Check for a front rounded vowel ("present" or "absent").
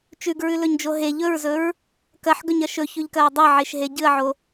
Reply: absent